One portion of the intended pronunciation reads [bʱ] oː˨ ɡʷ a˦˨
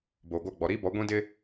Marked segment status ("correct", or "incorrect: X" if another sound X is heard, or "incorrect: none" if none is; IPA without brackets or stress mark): incorrect: b